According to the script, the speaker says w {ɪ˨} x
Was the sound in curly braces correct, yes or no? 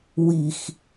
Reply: no